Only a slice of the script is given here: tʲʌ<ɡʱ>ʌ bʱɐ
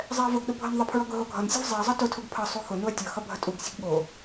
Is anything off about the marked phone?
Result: yes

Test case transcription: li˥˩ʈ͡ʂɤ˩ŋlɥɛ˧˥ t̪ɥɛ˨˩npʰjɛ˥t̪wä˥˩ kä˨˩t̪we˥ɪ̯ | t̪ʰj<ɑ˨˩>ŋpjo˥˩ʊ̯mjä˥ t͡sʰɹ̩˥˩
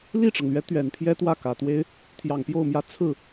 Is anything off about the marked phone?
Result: no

